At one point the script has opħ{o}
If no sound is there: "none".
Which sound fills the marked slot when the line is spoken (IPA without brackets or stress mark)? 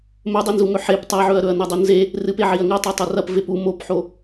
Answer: o